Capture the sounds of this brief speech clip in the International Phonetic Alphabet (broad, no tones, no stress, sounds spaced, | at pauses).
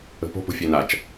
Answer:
ə̤ p o̤ p o̤ fʲ e n a t͡ʃ